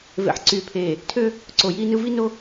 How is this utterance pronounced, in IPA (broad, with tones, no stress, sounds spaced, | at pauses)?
v ḛ˨ ħ ǀ yː˨ pʰ eː˨ | tʰ ø˦ | ǀ o˨ j iː˦ n ɯ˦ v i˦ n o˦